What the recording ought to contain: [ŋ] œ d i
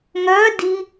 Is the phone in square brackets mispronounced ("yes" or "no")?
no